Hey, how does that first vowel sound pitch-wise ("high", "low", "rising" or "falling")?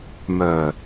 low